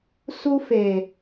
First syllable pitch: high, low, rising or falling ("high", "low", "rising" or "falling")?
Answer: high